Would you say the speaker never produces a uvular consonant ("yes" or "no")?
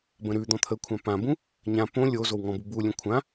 yes